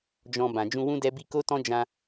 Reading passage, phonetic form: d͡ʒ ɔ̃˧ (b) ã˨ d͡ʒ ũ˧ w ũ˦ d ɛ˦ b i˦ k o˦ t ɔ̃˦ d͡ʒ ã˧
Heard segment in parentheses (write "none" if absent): b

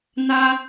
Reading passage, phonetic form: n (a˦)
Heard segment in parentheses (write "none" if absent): a˦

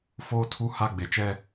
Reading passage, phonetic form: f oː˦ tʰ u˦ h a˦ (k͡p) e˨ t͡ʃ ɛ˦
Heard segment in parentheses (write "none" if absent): ɡ͡b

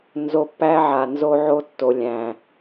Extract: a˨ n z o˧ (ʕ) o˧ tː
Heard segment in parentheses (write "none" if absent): ʕ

